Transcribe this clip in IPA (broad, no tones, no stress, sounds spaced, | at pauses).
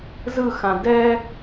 z ɯ x ã d ɛ